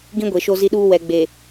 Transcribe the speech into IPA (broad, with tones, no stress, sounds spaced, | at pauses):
ɡ ĩ˦ ɡʷ e˨ ʃ o˦ z i˦ ɗ uː˦ w ɛ˨ ɡ͡b e˨